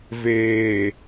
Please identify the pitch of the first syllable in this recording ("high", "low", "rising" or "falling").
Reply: low